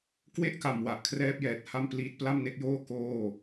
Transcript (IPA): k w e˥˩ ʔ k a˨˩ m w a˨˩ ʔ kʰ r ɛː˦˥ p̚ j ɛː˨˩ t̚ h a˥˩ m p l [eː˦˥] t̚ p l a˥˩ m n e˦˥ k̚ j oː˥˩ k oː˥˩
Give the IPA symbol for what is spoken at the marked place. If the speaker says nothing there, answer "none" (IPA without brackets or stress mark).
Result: iː˦˥